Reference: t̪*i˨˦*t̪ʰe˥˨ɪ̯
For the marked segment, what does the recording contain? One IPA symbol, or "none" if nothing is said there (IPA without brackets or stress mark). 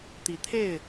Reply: i˨˦